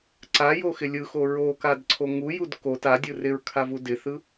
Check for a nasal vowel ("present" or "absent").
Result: absent